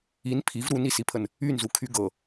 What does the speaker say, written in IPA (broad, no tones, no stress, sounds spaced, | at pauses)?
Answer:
i n pʰ i v ɾ u n i s i pʰ ə n | y n z u kʰ y ɡ ɤ